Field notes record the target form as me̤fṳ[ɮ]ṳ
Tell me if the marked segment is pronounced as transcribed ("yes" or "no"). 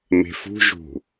no